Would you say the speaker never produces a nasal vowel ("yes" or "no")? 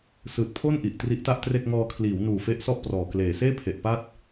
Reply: yes